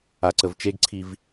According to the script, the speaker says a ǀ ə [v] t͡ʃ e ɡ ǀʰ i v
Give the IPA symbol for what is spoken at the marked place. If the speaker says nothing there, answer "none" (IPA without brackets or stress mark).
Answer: v